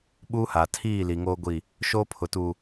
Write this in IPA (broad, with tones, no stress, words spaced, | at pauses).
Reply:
ɓu˦ha˨ tʰiː˦˨ li˨ŋo˦ɡʷi˦˨ | ʃo˦pʰʊ˨tu˨